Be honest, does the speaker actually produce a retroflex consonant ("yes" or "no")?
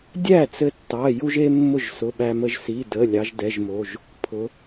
no